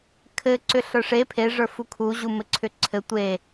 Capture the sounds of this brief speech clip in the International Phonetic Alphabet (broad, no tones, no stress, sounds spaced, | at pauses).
kʰ ɘ ǀ ʏ ɬ ə˞ ʂ e pʰ e ʐ ə˞ f u kʰ u ʑ u m ɘ ǀʰ ʏ ǀʰ ɘ tʷ e